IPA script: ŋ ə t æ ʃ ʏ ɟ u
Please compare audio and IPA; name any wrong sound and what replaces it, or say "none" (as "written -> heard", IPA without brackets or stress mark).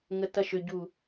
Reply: æ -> ɐ